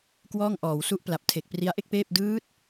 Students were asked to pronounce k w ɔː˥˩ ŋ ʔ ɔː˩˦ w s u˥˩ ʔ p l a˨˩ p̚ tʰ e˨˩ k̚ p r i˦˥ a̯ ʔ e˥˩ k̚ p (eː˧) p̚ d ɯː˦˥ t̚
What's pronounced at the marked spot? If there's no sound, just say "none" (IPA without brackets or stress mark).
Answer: eː˥˩